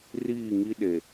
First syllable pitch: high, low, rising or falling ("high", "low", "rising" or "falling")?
falling